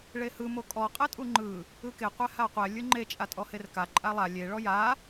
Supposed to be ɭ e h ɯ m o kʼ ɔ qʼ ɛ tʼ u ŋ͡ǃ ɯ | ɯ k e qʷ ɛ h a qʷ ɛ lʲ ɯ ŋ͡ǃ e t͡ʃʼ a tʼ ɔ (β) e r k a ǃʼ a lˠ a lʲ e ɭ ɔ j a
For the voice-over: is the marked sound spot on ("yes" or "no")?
no